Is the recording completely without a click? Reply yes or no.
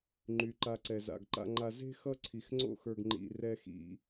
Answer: no